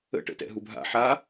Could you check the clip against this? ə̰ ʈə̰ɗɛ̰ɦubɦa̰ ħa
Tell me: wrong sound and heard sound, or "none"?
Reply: ɗ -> t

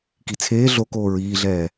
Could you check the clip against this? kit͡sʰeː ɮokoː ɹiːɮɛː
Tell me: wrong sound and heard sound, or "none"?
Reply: none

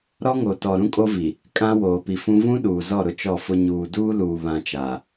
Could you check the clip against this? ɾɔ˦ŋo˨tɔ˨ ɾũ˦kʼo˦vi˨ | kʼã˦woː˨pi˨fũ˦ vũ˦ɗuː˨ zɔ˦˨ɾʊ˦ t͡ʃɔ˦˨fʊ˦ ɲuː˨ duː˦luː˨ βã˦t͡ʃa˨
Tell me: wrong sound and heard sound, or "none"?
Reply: none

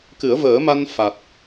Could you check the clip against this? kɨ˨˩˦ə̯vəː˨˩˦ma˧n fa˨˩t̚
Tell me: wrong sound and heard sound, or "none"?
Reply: none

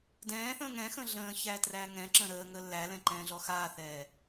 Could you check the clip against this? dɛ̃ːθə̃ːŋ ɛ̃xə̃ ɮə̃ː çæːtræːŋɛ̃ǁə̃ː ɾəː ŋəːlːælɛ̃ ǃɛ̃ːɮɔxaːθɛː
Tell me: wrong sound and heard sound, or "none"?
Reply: none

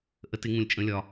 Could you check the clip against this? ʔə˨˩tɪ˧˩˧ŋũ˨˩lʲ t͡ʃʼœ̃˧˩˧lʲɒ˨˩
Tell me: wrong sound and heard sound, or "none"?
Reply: œ̃˧˩˧ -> ə̃˧˩˧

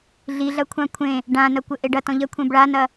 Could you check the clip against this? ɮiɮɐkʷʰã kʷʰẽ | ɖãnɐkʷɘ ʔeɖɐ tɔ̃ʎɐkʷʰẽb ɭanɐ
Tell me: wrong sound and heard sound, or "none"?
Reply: none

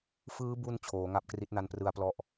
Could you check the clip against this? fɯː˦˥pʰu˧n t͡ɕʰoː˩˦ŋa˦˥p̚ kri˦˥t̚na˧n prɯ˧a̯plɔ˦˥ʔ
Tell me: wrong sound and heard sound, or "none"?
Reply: pʰ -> b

